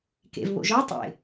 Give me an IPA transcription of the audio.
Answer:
k ḛ v β o̰ ʒ ɔ tˤ ḛ

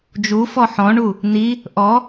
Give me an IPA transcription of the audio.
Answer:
d͡ʒ u f ɔ ħ ɔ̃ ɳ u | n̪ i | ʔ ɔ

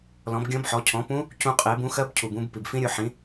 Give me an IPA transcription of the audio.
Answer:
l ɔ̃˩˥ b ɡʲ ɔ̃˧˥ b ħ ɔ˩˥ cʰ ɔ̃˩˥ p ũ˧˥ | c ũ˧ qʼ e˩˥ b ũ˩˥ x ɜ˧˥ b cʰ u˩ b ũ˧ b p i˩ b f ĩ˧˥ ɾʲ u˩˥ ħ ĩ˩˥

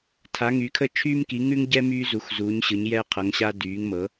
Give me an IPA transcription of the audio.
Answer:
tʰ a˨˦ ŋ y˨˦ kʰ ə˦ t͡ʃʰ yː˦ m k i˨˦ ŋ ʉ˦ ŋ ɟ ɛ˦ m yː˦ z u˨˦ x z uː˨˦ ɲ ɕ ɯ˨˦ ɲ j ɛ˦ qʰ ɤ˨˦ ŋ ɕ a˦ d yː˨˦ ŋ m ɤ˨˦

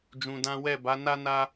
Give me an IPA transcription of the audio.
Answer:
d͡ʒ ũ˧ d ã˦ w ɛ˦˨ b a˨˦ n a˦ n a˦

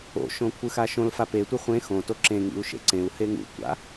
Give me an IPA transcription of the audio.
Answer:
o̰ ʃ õ kʷʰ ɯ x a ʃ õ l f a p e tʷ ɯ χʷ ẽ x õ t o ǁ ẽ ŋ ḭ u̯ ʃ ḛ ǀ ẽ u̯ h e ŋ ṵ tʷ a̰

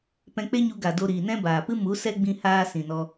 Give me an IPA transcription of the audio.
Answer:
p ɛ̃˧ k͡p e˦ ɲ u˧ ɡ a˨ d o˧ ɾ iː˨ n ɛ̃˦ b aː˨ p ɨ˦ m u˨˦ s ɛ˦ ɡ͡b ĩ˧ h aː˧ s ĩ˨ n ɔ˧

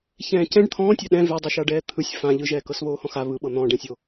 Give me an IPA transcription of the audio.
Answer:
ç ɛ̃ː c ɛ̃ ɖ t̪ʰ ɔ̃ː tʲ a ɗ ɛ̃ v ɛ dˤ ɯ ʃ a ɖ ɛː t̪ʰ ɯ sʲ f ã ʎ ɯ ʒ ɛː k ɤ s β oː h ɔ̃ x a β ɯ ɓ ɤ n̪ ɔ̃ ɖ ɛ̃ sʲ o

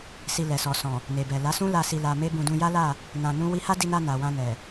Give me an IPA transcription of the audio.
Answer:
s i˧ l ɛ˨ s ɔ˨ s ɔ̃˨ | n e˨ b ɛ˨ l a˨˦ s ũ˦ l a˧ s i˧ l a˧ m e˦ b ũ˧ d ũ˧ j a˦ l a˦˨ | n ã˧ n ũ˦ w i˦ h a˦ d i˧ n a˧ n a˨ w ã˧ n ɛ˨

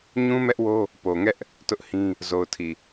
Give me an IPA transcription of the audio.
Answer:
ɲ ũ˦ m ɛ˦ ʔ w o˦ | p o˨ ŋ ɛ˦ ʔ | t ʊ˦ ʔ h ĩ˦ | z o˨ ʊ̯ tʰ i˨

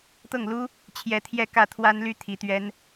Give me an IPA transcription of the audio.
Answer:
t̪ ɤ˥˩ ŋ l u˥ | t͡ɕʰ j ɛ˧˥ t̪ʰ j ɛ˥˧ k ä˥˩ t̪ʰ w a˥ n l y˥ t̪ʰ i˧˥ t̪ ɥ ɛ˥ n

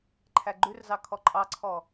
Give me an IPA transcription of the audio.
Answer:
ǃʰ æ ɡ͡ǃ ʉ r z ɑ kʰ ɔ ǃʼ ɑ ǀʰ ɔ

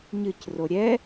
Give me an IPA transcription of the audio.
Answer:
ɲ ɨ c r o ɾʲ ɛ

